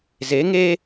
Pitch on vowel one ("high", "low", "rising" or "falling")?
rising